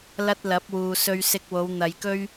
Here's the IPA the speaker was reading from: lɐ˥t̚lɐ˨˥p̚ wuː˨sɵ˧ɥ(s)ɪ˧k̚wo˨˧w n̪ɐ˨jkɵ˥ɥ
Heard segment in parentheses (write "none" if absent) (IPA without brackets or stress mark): s